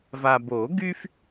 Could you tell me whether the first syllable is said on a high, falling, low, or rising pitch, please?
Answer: low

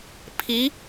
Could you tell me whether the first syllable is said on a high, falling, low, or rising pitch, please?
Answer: rising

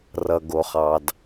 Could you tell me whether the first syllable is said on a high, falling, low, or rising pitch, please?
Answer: low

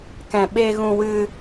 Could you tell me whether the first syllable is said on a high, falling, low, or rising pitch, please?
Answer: low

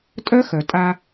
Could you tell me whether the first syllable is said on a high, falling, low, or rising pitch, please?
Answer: high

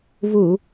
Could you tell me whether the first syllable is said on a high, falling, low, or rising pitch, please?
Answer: low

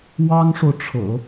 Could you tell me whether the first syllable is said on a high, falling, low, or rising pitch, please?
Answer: high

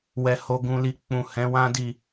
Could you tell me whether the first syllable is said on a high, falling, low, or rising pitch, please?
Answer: low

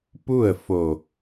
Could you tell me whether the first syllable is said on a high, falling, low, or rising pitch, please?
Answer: falling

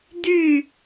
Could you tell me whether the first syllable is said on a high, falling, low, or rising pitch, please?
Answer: falling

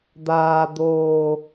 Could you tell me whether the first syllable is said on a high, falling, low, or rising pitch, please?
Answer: low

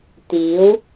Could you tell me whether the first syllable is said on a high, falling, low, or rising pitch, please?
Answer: rising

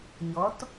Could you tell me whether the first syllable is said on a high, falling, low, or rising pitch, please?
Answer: rising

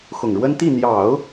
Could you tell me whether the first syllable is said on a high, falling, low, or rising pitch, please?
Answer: low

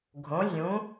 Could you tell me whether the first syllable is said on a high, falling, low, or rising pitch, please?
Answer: rising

